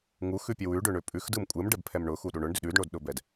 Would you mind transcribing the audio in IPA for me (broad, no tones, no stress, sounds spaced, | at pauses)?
ŋ u x ʉ pʲ ɛ w ʉ ɖ ʏ ɳ ʏ pʼ ʉ x d ɯ m kʷʼ ɯ m ɖ ɛ b pʰ ɛ m ɳ ʊ x u ɗ u ɳ ʊ ɳ d ʏ ɗ ʉ d ɳ o d ɗ ʊ b ɛ d